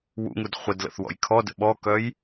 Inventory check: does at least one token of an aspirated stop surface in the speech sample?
yes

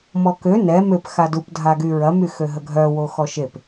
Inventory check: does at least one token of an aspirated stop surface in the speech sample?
no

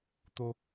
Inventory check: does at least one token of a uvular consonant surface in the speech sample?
no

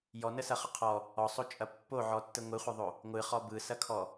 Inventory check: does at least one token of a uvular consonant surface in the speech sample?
yes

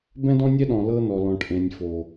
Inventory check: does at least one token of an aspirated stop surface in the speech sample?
no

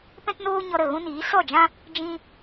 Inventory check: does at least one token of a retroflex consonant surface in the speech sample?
no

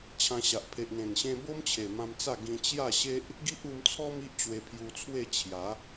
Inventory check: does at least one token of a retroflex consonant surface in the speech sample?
no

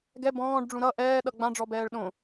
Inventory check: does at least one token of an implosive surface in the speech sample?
yes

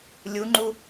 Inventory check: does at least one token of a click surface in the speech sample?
yes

